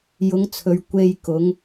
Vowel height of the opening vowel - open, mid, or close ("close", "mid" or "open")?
close